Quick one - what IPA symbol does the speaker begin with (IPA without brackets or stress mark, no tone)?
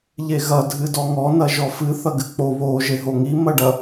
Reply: ʎ